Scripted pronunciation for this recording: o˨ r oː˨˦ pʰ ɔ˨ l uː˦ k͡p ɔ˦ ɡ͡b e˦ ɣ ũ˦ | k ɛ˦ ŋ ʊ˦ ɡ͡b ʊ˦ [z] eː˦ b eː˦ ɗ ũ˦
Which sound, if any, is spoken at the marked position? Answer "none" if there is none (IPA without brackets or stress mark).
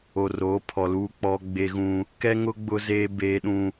z